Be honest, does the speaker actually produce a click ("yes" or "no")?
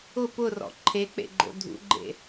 yes